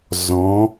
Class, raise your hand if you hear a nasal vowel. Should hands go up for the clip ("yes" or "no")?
yes